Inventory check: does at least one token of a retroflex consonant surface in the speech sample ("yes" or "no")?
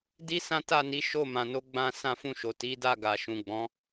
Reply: no